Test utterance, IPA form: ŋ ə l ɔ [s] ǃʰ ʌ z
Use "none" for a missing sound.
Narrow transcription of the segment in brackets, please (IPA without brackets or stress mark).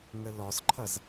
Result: s